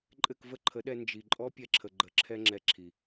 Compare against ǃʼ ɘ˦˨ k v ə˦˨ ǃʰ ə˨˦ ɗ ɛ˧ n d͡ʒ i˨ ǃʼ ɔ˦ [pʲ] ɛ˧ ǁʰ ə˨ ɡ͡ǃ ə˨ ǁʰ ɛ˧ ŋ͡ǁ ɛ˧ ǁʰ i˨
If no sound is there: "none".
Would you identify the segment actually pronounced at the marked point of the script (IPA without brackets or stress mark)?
pʲ